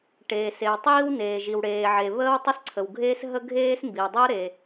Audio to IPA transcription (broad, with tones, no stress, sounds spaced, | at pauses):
ʈ eː˩ s e˩ w tˤ iː˥ w n eː˩ ʒ i˩ w ɽ eː˩ ʕ e˩ β əː˥ w tˤ ə˥ s ǀʰ ə˩ w ɡʱ eː˥ s ɦ ə˥ ɡʱ eː˥ s m b i˩ w dˤ ɤ˥ ɾ e˩